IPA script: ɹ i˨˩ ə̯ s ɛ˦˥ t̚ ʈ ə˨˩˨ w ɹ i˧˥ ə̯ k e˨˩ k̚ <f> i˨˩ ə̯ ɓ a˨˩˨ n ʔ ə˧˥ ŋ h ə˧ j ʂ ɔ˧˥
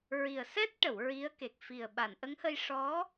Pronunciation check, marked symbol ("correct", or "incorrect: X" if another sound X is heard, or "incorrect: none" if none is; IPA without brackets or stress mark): correct